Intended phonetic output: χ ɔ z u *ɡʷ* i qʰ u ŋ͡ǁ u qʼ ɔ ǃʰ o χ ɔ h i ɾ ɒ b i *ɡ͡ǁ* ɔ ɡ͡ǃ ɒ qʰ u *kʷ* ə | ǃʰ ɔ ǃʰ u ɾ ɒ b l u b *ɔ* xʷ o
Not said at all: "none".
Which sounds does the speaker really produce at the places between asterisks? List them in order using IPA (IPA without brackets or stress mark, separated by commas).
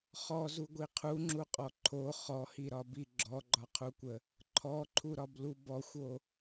ɡʷ, ɡ͡ǁ, kʷ, ɔ